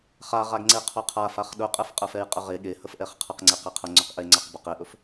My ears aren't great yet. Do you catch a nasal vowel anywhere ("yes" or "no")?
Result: no